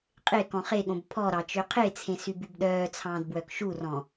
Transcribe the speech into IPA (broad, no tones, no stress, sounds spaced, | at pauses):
qʼ e k ɔ̃ χ e ɠ õ b pʰ ɔ ɾ ɑ t͡ʃ ø qʰ e t͡sʰ ẽ s y b y b ɗ œː t͡sʰ ɑ̃ː d b w œ k ʃ u r ɔ̃